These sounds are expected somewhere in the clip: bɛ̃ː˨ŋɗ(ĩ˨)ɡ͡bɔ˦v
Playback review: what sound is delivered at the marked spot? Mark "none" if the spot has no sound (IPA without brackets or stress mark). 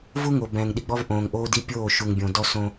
i˨